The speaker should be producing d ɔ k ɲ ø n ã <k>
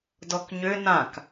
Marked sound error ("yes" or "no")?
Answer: no